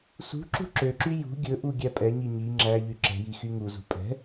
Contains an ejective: yes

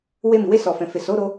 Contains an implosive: no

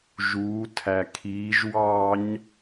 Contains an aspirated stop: yes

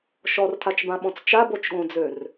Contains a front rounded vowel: yes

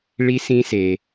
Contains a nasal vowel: yes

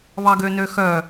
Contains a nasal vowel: no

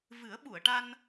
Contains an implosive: yes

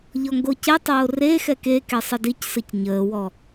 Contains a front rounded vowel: no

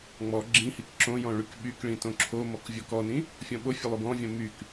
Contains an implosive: yes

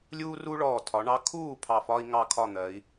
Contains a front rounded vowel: no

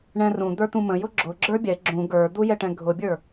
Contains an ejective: no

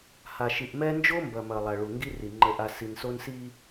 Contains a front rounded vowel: no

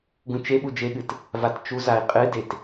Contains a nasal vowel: yes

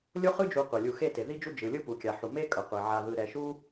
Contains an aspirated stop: no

